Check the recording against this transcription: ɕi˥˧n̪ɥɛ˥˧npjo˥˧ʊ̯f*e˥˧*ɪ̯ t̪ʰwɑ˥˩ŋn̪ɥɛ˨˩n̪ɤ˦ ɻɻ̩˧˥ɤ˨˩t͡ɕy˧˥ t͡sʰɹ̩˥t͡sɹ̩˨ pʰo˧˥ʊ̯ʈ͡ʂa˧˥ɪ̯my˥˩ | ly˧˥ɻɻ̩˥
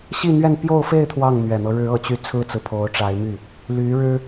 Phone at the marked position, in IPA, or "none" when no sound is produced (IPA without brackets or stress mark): e˥˧